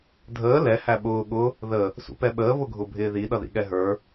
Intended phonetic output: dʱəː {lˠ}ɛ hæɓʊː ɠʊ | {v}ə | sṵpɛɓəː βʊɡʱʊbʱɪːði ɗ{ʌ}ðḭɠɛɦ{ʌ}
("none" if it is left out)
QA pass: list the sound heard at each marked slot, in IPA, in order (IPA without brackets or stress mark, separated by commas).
l, ð, ʌ, ə˞